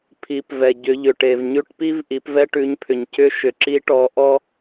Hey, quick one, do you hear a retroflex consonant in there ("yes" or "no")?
yes